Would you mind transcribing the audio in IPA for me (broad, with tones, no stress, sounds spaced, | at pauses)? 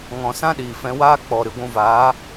ŋ ɔ̃˨ s ã˦ ɗ iː˨ f ɛ̃˧ w aː˦ k͡p ɔ˨ ɾ ɨ˨ ɡʷ ũ˧ v aː˨˦